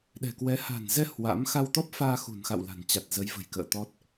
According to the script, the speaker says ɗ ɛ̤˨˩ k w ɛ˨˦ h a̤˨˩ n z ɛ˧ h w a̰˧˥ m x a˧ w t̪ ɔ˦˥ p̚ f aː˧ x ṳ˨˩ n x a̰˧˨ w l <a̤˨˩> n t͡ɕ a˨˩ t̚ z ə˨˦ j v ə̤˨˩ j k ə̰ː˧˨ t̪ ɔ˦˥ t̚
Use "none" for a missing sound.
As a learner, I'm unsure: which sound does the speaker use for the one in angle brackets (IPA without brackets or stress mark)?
a̤˨˩